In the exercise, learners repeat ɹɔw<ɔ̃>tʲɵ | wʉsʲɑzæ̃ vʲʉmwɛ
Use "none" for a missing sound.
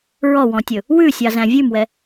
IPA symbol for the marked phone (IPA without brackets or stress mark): ɔ̃